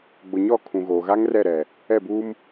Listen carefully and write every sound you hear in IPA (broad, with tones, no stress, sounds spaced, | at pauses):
ɡ͡b ʊ˨ ɲ ɔ˦˨ kʰ ũ˨ ɣ oː˨ ɣ a˦ ŋ r ɛ˦˨ ɾ ɛ˨ | ɛ˦˨ b uː˦ m